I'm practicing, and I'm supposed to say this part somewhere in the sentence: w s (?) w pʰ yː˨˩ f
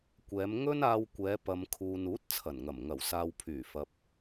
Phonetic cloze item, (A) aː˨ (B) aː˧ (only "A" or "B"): A